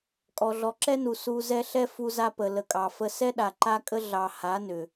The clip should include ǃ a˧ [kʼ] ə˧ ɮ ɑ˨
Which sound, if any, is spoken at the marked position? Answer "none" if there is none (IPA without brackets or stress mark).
kʼ